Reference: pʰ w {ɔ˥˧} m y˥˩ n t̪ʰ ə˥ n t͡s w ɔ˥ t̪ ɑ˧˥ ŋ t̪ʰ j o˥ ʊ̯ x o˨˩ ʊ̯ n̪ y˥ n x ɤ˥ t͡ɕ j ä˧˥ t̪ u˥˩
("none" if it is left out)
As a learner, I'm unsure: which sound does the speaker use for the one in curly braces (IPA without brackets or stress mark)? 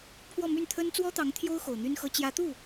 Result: ɔ˥˧